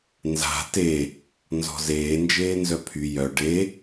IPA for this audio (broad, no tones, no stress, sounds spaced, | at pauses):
n z a̤ t e | n z ɔ̤ z eː n d͡ʒ eː n z œ pʰ y j œ ɖ e